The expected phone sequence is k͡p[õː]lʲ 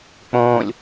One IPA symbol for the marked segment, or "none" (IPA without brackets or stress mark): õː